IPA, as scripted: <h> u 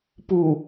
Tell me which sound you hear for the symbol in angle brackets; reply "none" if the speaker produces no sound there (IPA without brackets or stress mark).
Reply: p